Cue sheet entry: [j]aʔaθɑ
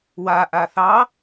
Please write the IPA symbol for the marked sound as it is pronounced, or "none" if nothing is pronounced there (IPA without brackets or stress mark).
w